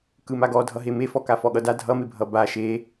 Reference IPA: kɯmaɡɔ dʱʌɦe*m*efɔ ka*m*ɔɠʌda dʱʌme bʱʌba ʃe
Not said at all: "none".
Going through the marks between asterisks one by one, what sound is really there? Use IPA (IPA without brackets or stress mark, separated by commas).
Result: m, f